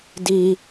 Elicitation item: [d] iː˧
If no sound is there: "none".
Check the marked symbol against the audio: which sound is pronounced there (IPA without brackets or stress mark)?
d